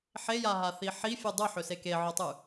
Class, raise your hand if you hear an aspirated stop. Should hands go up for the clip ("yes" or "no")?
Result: no